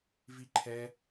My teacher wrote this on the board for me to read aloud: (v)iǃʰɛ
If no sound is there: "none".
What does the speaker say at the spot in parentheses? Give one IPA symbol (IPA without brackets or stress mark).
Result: v